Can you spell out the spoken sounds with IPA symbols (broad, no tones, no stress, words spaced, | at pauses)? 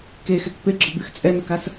kexɛk peɡ͡ǁɒbyx t͡sʼɛnəkas